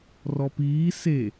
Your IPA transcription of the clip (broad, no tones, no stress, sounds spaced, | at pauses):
r ɔ p iː s e